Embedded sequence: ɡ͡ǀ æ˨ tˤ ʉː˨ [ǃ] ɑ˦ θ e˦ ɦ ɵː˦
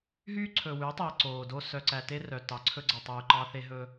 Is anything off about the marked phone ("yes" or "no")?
no